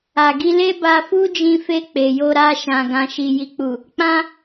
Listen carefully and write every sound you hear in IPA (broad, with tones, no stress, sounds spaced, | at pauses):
a˨ ɡ i˧ l e˦ b a˧ f u˦ d͡ʒ ĩ˧ f e˧ k͡p e˨ j o˧ ɾ a˧ ʃ ã˨ ɡ ã˨ ʃ i˨ j i˨ k͡p u˨ | k͡p ã˦